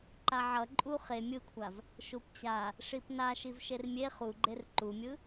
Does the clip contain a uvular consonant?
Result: yes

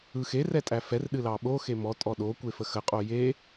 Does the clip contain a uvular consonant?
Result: yes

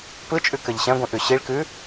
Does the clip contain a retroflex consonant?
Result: yes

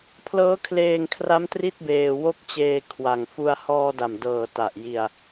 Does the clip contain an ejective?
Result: no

